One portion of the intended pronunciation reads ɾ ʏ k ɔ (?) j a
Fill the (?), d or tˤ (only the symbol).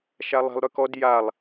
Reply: d